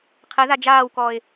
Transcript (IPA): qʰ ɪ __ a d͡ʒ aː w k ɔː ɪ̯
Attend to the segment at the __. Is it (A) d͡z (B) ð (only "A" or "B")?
B